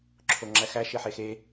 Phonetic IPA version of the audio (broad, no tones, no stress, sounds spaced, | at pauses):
ǁʰ o ŋ͡ǁ æ x æ ʃ e ħ e x e